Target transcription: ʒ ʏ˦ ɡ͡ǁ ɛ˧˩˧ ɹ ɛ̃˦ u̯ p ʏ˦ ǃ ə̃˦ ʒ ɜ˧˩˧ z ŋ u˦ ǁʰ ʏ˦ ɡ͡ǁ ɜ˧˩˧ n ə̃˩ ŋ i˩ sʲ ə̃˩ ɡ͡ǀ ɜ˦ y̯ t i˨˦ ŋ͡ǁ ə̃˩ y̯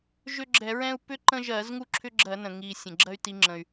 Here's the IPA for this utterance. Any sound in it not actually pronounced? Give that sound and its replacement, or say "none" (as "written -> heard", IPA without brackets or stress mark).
ɡ͡ǀ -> ɡ͡ǁ